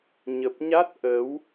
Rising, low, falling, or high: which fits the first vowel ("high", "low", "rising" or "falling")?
low